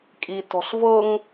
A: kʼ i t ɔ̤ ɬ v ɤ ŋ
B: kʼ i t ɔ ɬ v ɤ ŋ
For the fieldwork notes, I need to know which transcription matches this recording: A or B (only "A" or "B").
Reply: A